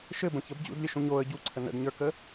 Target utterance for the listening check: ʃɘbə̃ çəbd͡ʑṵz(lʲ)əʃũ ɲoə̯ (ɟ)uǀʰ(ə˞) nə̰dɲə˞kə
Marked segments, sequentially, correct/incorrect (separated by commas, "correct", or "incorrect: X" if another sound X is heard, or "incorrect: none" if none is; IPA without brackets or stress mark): correct, correct, incorrect: ə